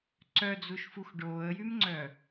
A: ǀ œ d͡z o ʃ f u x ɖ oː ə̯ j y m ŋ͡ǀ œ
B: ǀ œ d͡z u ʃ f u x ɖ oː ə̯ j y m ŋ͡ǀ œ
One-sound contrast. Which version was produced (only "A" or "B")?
B